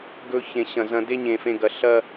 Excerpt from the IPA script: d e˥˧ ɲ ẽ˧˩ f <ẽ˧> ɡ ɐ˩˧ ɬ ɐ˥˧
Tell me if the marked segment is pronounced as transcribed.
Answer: yes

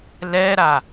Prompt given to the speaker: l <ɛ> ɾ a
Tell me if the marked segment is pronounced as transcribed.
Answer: yes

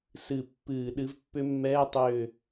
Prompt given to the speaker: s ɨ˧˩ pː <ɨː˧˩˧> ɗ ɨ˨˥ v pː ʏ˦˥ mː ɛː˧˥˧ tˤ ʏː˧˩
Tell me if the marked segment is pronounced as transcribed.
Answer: yes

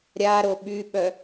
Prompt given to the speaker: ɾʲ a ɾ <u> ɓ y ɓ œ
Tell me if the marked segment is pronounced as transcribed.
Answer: no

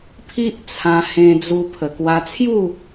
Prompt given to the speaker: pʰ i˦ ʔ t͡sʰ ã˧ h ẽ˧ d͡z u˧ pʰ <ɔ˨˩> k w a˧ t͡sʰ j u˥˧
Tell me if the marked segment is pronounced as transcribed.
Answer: no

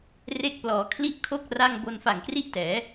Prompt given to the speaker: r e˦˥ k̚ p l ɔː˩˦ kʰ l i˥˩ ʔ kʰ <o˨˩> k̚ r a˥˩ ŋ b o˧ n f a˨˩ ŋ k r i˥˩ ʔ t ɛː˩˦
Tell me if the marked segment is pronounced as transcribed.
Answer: no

